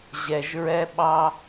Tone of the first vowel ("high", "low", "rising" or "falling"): low